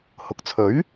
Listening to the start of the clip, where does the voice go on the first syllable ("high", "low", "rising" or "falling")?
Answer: low